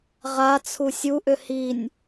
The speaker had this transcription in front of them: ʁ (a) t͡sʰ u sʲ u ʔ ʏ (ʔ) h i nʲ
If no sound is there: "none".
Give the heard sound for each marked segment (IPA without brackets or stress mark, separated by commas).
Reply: a, none